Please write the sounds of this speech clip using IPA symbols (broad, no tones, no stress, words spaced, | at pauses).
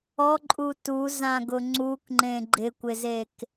ɔǃʼu tuzãɡʊ ŋ͡ǀukŋ͡ǃẽ ɡ͡ǃɪkʷɪzek